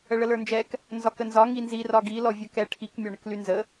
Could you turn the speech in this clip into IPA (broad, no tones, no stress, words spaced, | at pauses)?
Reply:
əɭələ˞nd͡ʒɛk | nzɒkənzɒ ŋinzi rɒɡi lɔvʲə˞kɛ ʈʰik mʲɒɳəklynzə